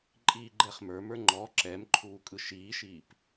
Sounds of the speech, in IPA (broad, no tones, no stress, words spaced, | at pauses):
ǃʼiːɡ͡ǃɛχmə˞mə˞ ŋ͡ǃɔ ǁɛmǃʰuː kʼɯʃiːʃiːp